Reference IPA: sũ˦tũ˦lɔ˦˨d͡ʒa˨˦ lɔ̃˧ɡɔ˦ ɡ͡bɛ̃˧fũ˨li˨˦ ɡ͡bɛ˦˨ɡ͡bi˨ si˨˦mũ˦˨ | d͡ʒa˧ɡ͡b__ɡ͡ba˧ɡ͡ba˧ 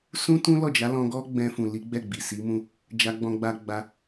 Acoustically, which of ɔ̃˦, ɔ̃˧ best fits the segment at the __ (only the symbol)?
ɔ̃˧